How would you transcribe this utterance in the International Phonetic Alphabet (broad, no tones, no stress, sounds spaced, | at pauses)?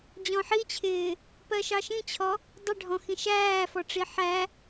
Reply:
d͡ʑ ɔ̃ ħ i t͡ɕʰ ɪː | p ɜ ʃ ɑ ʃ ĩ t͡ɕʰ ɔ | dˤ ɪ ɖʱ ɔ̃ x ĩ ʃ æː f ɔ ʈ͡ʂ i ħ æ